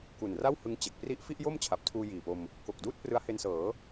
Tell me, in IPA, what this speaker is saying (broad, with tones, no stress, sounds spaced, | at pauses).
k u˨˩ n r a˥˩ w h ɯ˧ ŋ t͡ɕ e˨˩ k̚ p r i˥˩ ʔ f i˥˩ ʔ j o˥˩ m t͡ɕʰ a˨˩ p̚ tʰ uː˧ j iː˨˩ p o˧ m | k o˨˩ k̚ d uː˥˩ t̚ p r ɯ˦˥ a̯ h e˧ n s ɤː˩˦